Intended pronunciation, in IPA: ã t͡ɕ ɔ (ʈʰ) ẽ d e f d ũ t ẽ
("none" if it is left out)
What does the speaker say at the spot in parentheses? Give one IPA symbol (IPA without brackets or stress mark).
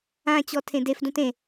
tʰ